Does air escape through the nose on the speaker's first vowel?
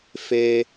no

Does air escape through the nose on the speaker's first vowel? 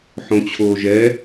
yes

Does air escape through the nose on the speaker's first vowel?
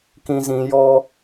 yes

